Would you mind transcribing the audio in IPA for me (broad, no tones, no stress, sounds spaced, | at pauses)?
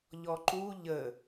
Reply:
ʎ ɔ ǃ u ʎ ə